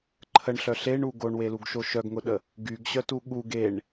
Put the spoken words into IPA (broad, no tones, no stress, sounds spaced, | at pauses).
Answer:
ǃʰ ə ɳ ɬ œ ɬ e ɳ u ɡ o ɳ w e l u ɡ ʃ o ʃ œ ɡ ŋ ʊ ɗ ə | ɡ y ɡ ɕ œ t u ɠ u ɡ e ɳ